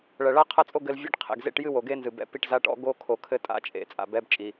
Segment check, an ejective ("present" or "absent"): present